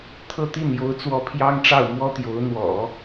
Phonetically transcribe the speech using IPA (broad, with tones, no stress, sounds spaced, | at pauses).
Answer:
t̪ʰ ɤ˥˧ t̪ i˥˩ n j o˧˥ ʊ̯ t͡s w ɔ˧˥ pʰ j ɑ˥ ŋ ʈ͡ʂ ɑ˥˩ ʊ̯ m w ɔ˥ t̪ j o˧˥ ʊ̯ n̪ w ɔ̰˨˩˦